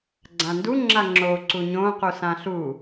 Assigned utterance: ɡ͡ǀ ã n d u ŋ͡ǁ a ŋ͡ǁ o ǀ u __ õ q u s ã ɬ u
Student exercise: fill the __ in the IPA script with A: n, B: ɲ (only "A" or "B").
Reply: B